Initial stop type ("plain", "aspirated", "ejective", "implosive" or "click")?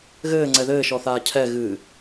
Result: click